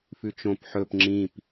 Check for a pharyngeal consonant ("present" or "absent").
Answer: present